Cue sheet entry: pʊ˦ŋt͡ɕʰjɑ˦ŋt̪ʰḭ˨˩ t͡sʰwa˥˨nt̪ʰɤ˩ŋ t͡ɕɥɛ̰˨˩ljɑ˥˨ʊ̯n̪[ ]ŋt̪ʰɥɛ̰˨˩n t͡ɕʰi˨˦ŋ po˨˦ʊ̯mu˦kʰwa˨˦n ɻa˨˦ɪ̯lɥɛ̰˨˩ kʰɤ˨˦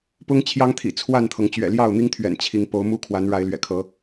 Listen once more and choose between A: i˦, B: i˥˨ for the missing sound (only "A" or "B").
A